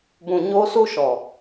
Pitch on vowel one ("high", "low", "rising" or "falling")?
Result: low